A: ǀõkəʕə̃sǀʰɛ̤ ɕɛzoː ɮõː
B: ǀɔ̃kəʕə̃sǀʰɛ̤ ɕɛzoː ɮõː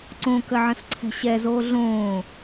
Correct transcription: A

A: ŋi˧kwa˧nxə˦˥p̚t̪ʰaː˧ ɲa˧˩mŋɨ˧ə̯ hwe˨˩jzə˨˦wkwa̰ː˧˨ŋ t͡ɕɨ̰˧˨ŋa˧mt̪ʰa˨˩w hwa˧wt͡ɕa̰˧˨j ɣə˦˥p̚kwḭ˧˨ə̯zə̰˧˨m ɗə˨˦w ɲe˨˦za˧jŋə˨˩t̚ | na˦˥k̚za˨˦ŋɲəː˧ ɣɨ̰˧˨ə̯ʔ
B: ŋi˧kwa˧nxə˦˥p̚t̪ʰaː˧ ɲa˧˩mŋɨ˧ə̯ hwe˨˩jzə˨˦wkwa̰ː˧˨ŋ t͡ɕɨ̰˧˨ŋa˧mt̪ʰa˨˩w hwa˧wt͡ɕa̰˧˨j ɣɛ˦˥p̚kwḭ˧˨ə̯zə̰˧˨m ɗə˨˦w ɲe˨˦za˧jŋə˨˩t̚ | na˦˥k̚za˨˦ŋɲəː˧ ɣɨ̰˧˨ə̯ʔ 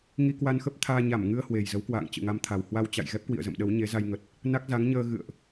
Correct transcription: B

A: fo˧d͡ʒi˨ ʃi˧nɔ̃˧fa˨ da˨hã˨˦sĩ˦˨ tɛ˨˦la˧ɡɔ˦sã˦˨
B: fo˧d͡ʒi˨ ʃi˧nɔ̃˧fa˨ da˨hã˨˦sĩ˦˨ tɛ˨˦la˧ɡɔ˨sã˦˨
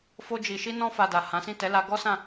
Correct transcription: A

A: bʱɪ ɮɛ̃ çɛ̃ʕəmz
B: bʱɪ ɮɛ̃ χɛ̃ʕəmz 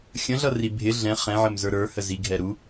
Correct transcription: B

